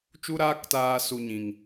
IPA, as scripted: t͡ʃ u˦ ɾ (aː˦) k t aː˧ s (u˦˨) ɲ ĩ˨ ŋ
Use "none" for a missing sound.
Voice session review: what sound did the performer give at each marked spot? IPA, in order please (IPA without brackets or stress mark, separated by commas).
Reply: aː˦, u˧